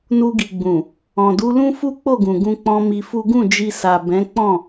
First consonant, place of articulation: alveolar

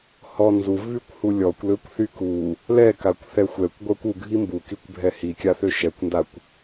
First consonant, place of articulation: glottal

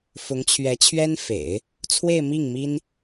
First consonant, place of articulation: labial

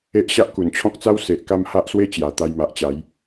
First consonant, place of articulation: glottal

